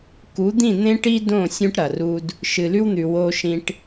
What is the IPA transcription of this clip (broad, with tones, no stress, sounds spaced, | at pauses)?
k u˨˦ d̪ ĩ˦˨ n̪ ẽ˦ ʈ i˦ d õ˦˨ sʲ ũ˦ ʈ ɾ ɐ˨ r u˦ d | ʃ ɨ˨ l ʉ˦ w n̪ ʉ˨ w o˦ ʃ ĩ˦ ʈ